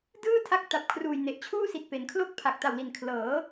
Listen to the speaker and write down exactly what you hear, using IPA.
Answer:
d ɯː˥˩ tʰ a˦˥ k̚ t a˨˩ p̚ kʰ r uː˨˩ j n e˨˩ ʔ t͡ɕʰ uː˥˩ s i˨˩ t̚ p e˩˦ n kʰ l o˥˩ k̚ pʰ a˨˩ k̚ t a˨˩ w l i˨˩ n kʰ l ɤː˩˦

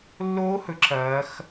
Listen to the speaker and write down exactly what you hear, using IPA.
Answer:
lː oː˦˥ h ɵ˨˦ ǁ ɐː˨˦ x

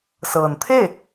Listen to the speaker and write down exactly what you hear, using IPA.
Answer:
s ɤː˩ n t̪ʰ e˥˨

